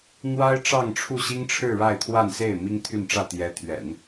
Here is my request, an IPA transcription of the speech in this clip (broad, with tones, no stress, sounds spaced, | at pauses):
n̪ w a˥ ɪ̯ ʈ͡ʂ ɑ˥˧ ŋ ʈ͡ʂʰ u˥˩ ɕ i˥ ŋ ʈ͡ʂʰ ɻ̩˥˧ ɻ a˥˧ ɪ̯ t̪ʰ w a˥˧ n s e˥˩ ɪ̯ m i˥ ŋ t̪ʰ y˥˧ n ʈ͡ʂ ä˥˩ t̪ j ɛ˧˥ t̪ʰ ɥ ɛ̰˨˩˦ n